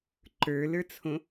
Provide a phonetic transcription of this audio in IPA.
ǃə˞lə˞t͡sʰõ

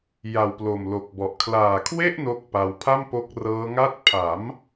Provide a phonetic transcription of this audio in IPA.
ja˨˩wplo˨˩mlo˨˩k̚bɔ˨˩ʔ kʰlaː˨˩kʰwe˥˩ʔ no˥˩k̚pa˧w pʰa˥˩mpo˦˥k̚rɤː˦˥ ŋa˦˥t̚pʰa˩˦m

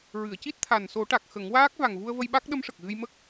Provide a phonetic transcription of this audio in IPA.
ɹɨ˨˩˨ə̯ci˦˥t̚ t̪ʰa˨˩nso˨˩˦ʈa˨˩k̚ xə˨˩˦ŋwaː˦˥k̚ va˨˩ŋvu˧ə̯və˧j ɓa˦˥k̚ ɗə˧˥mʂə˨˩k̚ɣɨ˧jmə˦˥k̚

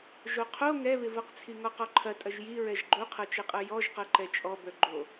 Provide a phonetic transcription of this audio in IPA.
ʒoqʰo ŋɛβɪvɤqt͡sʰi ŋɔqɔǃʰɐtʼɐʒ jiɹɛʒ ɡ͡ǃoqʰɤt͡ʃɛqʼɤ jɔʒqɤǃɛ t͡ʃʼɔ bœɡ͡ǃo

